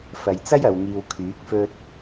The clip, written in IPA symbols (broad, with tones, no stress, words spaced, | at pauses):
fɐ˨jt͡sɐ˥j ɐ˨˧wŋiː˧w kʰyː˨˥k̚fɵ˥t̚